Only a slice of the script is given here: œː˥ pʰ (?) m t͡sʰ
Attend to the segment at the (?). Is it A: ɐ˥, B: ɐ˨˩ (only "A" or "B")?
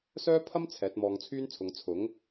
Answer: A